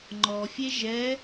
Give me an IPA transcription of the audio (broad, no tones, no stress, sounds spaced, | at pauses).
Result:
ŋ͡ǃ ɔ fʲ e ʒ ɛ